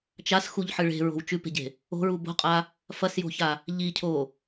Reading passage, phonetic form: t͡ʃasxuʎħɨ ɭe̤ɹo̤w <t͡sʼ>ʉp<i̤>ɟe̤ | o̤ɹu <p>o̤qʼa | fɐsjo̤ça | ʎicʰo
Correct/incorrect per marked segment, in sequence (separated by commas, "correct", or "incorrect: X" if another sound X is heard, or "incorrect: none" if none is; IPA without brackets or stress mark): incorrect: t͡ʃ, incorrect: e̤, incorrect: b